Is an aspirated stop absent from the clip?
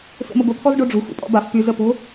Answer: no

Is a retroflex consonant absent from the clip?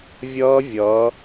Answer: yes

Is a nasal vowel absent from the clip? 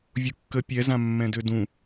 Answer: no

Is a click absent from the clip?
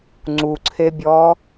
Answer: no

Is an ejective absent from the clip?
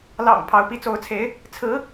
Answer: yes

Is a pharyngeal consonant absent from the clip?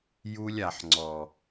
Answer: no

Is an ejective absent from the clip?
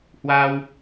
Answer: yes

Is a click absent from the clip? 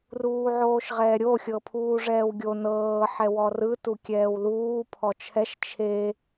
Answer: yes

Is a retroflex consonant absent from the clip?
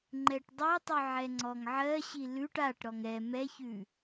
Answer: no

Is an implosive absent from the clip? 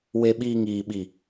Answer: no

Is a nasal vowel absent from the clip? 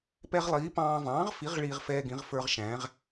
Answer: no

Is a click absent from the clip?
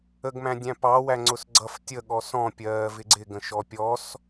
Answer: no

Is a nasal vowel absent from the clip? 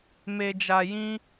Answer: no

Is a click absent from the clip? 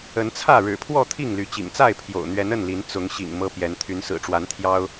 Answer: yes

